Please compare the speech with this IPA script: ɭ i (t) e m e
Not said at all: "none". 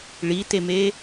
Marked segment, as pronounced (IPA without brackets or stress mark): t